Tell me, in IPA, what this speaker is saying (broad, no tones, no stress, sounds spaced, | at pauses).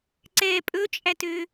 ǀ ɛ pʼ ɵ t͡ʃʼ æ t ø